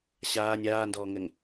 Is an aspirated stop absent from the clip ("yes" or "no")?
yes